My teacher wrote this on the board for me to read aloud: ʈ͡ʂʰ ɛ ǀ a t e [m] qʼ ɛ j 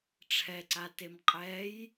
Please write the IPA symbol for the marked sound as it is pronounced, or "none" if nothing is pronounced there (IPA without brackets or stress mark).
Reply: m